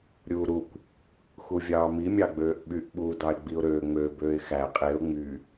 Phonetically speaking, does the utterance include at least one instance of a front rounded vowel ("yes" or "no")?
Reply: yes